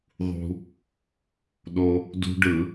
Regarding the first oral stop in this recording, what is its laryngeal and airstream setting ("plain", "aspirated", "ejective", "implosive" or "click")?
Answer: implosive